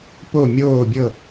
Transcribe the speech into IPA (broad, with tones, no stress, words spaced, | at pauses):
po˥˨mʲoː˥˨bʲɤ˥˨